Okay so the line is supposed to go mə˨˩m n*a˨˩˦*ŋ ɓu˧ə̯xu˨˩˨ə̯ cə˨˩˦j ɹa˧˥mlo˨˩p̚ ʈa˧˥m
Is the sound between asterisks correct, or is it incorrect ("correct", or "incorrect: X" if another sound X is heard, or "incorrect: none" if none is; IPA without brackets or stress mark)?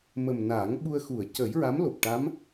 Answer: correct